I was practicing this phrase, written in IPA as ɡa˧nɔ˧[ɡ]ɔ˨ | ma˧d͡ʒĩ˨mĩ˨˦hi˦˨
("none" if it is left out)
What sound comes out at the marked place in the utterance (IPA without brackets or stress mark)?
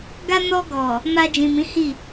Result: ɡ